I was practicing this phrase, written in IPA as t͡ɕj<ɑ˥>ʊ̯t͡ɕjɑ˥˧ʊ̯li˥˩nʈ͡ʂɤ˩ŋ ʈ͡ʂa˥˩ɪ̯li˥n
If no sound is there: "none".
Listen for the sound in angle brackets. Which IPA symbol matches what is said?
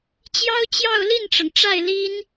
ɑ˥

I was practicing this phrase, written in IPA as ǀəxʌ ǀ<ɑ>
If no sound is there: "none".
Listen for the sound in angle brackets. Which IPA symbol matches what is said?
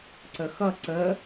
ə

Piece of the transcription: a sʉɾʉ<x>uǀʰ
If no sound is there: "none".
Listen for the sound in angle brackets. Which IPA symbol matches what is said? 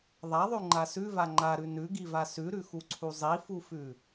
x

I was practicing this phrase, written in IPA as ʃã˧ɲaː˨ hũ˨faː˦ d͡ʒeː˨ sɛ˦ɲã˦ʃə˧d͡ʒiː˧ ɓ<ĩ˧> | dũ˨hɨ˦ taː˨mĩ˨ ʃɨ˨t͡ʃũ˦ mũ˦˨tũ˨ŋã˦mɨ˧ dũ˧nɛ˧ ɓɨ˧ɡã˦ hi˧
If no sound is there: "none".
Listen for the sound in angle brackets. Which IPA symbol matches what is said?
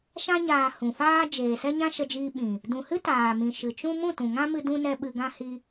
ĩ˨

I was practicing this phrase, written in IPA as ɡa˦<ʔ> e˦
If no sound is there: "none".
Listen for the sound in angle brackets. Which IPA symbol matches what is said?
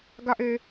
ʔ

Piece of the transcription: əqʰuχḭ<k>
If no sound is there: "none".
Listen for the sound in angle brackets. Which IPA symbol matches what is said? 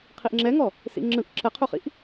ʔ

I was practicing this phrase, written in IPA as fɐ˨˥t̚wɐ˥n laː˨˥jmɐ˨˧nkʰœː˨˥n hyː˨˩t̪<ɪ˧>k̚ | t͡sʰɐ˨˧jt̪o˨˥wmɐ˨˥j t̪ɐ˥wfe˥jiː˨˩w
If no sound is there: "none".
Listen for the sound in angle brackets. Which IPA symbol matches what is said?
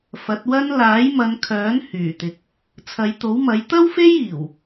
ɪ˨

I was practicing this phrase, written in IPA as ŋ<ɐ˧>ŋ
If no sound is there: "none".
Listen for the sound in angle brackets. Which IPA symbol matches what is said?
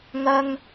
ɐ˥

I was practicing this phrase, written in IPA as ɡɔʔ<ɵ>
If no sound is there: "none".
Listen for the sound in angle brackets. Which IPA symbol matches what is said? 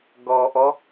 ɔ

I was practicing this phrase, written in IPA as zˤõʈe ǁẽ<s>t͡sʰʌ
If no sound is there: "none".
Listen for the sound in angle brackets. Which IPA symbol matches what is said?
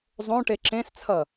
s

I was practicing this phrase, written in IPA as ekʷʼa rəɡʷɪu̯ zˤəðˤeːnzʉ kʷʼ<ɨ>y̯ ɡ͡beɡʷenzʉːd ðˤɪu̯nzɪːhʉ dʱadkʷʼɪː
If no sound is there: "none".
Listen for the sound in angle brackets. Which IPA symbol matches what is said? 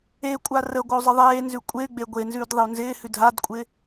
e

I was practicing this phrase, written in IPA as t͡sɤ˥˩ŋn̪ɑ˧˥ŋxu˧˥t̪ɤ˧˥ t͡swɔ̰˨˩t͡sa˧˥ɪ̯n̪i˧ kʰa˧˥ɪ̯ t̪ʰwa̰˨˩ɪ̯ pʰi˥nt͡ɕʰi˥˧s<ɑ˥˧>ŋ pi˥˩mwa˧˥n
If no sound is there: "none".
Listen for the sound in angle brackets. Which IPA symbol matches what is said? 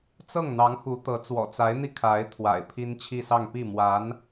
ɑ˥˧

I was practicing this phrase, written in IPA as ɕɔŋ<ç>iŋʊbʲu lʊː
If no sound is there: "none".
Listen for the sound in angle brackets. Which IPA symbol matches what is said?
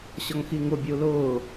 x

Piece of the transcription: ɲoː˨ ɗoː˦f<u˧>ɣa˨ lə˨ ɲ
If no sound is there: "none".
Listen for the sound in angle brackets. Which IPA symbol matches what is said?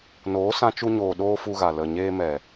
u˧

